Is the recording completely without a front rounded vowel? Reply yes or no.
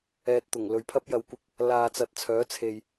no